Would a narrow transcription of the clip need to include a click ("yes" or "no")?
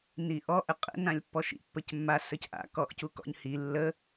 no